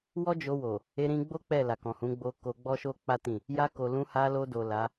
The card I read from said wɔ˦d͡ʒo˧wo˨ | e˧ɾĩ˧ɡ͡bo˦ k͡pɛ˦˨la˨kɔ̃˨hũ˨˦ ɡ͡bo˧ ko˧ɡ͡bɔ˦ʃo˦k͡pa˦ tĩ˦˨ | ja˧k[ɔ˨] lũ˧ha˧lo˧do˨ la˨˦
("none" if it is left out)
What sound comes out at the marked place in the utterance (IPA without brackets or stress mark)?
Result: o˨